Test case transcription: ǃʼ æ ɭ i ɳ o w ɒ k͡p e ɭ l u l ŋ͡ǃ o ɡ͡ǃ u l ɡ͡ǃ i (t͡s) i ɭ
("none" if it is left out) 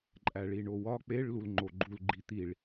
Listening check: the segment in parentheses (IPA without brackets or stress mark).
t̪